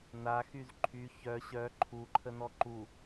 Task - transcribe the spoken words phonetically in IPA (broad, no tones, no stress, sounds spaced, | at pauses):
n a x y z ǃʰ y ç œ ɕ œ ǃʰ u ǃʰ ə n ɔ ǃ u